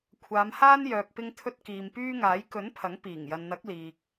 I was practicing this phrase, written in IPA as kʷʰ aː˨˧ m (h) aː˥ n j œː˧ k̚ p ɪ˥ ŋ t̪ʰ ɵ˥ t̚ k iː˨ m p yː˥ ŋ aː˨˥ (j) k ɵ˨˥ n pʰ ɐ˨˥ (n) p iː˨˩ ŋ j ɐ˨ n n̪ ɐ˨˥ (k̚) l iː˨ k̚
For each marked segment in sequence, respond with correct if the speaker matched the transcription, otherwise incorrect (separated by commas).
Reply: correct, correct, incorrect, correct